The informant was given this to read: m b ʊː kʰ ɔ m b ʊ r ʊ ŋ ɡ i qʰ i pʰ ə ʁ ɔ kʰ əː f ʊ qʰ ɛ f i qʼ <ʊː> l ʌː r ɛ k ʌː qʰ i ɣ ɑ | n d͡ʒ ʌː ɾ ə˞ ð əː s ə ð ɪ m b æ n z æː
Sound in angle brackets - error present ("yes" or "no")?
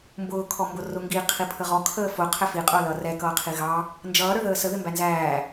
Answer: no